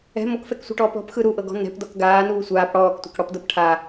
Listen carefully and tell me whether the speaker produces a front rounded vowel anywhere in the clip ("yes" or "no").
no